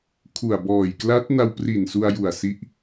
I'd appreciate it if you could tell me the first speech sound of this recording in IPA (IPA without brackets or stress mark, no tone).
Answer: kʰ